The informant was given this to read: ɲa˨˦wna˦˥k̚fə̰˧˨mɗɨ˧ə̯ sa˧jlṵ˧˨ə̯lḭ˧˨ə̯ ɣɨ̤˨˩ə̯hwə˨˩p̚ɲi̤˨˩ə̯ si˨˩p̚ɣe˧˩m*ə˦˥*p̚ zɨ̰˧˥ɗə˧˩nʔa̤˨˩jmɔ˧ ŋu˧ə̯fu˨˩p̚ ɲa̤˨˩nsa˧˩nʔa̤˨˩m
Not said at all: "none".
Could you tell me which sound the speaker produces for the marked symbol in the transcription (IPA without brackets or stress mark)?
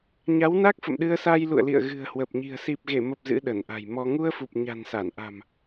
ə˨˩